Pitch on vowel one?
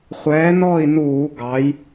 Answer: rising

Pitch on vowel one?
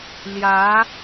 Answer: rising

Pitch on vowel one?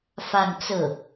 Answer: falling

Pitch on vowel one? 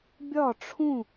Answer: falling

